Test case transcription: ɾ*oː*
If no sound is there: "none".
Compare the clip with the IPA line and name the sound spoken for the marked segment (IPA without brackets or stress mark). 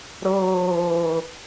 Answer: ɤː